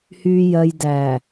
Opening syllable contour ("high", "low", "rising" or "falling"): low